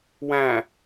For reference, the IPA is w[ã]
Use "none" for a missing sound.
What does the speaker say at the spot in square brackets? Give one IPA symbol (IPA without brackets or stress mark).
æ̃